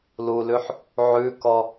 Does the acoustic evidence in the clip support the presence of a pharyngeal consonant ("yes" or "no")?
yes